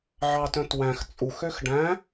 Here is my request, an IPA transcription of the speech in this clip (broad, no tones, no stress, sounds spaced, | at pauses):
ʕ ɑ t œ̃ t w æ̃ x t͡sʼ u x ø x ɖ æ̃